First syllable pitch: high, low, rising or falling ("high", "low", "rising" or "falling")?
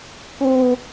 high